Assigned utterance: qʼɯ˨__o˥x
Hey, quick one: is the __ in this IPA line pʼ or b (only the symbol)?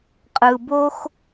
b